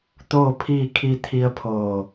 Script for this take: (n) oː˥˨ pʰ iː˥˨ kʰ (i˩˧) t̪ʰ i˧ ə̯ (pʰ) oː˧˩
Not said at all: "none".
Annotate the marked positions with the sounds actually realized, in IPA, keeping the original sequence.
t̪, i˧, pʰ

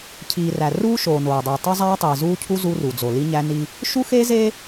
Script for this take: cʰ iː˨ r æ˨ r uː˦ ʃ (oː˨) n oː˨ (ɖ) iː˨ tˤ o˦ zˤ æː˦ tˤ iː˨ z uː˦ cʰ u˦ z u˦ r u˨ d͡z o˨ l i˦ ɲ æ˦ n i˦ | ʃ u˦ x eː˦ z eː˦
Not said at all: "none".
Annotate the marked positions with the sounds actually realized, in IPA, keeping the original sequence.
oː˨, dˤ

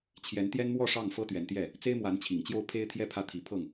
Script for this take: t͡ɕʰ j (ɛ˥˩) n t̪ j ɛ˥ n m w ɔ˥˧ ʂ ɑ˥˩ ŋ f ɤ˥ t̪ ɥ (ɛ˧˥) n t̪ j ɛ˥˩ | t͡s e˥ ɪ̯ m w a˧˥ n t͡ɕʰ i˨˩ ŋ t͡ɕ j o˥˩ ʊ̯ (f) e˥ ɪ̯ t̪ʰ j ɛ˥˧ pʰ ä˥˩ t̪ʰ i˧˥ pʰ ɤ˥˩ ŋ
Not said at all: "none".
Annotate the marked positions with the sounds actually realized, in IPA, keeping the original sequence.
ɛ˧˥, ɛ˧˥, pʰ

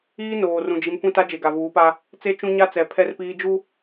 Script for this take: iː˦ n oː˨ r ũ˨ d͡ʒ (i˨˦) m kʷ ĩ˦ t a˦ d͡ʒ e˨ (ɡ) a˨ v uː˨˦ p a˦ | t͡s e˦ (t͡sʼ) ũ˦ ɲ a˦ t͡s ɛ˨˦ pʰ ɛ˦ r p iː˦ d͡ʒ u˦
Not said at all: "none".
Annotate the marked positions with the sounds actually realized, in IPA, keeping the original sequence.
i˨˦, ɡ, t͡ʃ

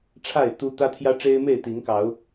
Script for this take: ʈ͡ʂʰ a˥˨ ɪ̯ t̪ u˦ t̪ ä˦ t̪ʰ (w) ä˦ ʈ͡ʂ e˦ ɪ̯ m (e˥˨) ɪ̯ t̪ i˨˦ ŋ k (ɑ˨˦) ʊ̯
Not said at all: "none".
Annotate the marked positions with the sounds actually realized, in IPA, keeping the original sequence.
j, e˥˨, ɑ˨˦

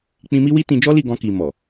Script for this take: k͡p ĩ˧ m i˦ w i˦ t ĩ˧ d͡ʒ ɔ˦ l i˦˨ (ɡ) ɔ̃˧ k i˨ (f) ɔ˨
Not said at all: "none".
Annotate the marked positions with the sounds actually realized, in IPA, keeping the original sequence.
ɡ, m

